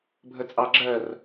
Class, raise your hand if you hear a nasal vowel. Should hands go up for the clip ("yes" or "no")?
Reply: no